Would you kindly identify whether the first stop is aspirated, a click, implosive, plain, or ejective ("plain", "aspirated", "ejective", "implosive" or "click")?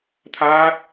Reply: aspirated